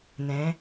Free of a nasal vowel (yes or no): no